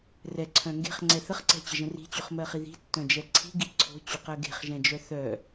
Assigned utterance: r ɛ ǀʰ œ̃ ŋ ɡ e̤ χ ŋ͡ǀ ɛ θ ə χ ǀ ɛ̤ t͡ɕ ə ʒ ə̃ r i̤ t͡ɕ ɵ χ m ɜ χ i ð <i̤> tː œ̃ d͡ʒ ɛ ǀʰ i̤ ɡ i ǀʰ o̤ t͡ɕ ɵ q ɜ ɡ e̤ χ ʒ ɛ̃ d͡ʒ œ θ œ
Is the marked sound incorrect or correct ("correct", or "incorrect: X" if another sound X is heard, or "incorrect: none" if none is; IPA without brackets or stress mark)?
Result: correct